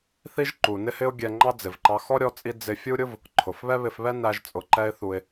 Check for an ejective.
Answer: present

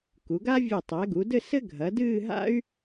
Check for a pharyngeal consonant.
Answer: absent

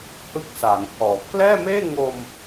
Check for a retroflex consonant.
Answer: absent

